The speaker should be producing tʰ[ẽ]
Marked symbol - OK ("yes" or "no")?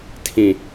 no